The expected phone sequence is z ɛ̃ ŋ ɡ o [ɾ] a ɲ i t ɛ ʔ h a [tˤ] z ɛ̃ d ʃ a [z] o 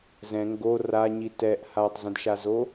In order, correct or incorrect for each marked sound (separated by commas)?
incorrect, correct, correct